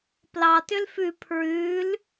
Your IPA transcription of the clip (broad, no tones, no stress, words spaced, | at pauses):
plɑtʏl fʉ pʰɹʉl